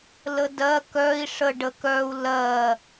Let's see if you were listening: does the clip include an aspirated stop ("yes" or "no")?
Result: no